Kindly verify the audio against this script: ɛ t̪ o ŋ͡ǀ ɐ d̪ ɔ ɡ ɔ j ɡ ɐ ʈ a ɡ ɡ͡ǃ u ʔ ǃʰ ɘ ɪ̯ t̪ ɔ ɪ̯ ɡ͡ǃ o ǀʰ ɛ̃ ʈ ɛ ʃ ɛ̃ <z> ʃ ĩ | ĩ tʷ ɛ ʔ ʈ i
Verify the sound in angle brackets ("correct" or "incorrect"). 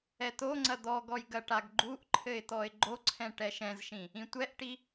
correct